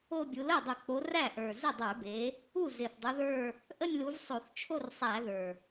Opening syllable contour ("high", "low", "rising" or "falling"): falling